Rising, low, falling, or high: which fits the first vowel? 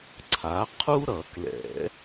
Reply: rising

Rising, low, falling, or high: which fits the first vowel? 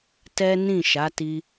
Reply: high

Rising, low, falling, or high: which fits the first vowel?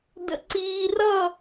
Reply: low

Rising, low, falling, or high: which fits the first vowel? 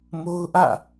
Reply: high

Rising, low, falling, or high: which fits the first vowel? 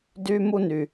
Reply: high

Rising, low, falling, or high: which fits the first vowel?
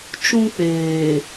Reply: high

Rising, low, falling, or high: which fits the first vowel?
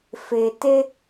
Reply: low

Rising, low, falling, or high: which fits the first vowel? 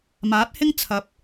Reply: rising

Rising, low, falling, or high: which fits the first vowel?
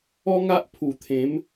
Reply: high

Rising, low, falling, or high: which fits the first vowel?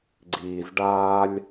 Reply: low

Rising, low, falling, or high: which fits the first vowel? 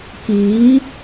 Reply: rising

